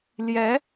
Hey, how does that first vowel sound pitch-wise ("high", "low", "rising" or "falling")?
rising